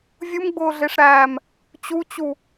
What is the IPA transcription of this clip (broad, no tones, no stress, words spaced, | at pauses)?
vʲumɡ͡bʊːɮeʂɾæːm | t͡ɕut͡ɕu